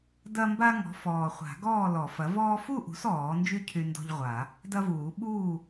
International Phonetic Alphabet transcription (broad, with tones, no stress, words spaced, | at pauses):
dɐ˦mba˦ŋɔ̤˩˥fɔː˨˩ χʷa̤˨˩˦ɡɔː˥˨lɔ˨˩˦fɐ˩˥ vɔː˦ fu˥˨ʔṳ˩˥s ɔː˨˩˦nd͡ʒy˥˨ cʰy˦ndɔ̤˦ʎʁʷa˨˩˦ | dɐ˦vuː˨˩˦ ɓuː˥˨